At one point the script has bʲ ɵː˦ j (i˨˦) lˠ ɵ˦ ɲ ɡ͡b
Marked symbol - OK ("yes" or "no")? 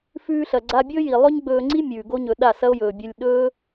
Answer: no